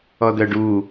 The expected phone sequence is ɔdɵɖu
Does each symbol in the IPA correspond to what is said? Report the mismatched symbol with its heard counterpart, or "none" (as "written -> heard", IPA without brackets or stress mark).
ɵ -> œ